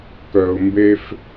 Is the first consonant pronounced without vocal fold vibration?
yes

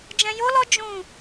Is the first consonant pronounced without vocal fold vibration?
no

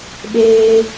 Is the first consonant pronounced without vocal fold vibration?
no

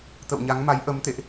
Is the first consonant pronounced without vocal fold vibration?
yes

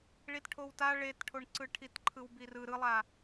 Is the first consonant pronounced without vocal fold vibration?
no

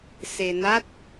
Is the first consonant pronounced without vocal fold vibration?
yes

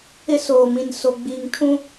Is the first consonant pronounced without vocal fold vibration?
yes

